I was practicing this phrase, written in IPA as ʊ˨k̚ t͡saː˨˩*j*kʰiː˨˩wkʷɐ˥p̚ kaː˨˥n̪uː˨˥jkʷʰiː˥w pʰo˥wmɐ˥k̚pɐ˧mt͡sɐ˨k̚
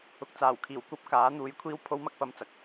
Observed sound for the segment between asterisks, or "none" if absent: w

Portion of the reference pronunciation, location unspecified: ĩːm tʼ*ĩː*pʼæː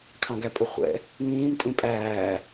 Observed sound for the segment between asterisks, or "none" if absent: ĩ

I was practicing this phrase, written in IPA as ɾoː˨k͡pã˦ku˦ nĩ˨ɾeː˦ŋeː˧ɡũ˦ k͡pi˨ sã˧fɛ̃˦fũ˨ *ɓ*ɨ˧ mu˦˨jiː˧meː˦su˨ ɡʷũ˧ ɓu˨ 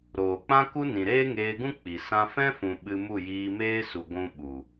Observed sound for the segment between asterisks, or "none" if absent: ɓ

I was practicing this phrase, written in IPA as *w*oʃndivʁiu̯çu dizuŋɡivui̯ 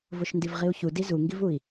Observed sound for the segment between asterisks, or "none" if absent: v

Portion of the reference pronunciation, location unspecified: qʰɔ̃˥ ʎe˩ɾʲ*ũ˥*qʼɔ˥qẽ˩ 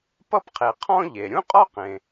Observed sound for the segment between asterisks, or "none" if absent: ũ˥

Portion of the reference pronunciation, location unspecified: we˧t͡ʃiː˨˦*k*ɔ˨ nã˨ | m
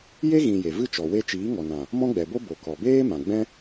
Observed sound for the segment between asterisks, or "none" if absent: ŋ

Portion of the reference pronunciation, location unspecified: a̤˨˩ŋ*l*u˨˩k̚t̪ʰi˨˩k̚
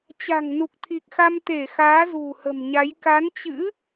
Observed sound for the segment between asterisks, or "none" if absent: n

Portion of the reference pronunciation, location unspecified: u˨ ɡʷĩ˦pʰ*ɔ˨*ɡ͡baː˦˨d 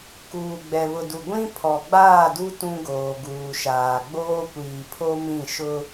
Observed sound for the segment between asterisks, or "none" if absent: ɔ˨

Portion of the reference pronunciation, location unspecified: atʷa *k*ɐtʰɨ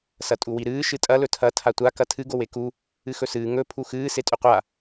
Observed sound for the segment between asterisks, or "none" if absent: k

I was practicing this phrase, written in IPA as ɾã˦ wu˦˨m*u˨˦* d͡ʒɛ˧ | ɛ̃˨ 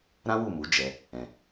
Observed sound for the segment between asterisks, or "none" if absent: u˨˦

